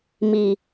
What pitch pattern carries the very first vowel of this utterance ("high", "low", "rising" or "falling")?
low